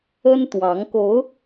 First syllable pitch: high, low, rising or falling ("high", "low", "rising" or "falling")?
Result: high